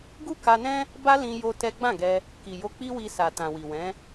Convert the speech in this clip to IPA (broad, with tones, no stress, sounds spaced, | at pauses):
ɡ u˦ k a˧ n ɛ̃˦ | b a˦ l ĩ˧ j o˦ t ɛ˦ ɡ͡b ã˦˨ ɡ ɛ˧ | k i˨ j o˧ k͡p i˦ w i˧ s a˨ t ã˨ w i˨ w ɛ̃˨˦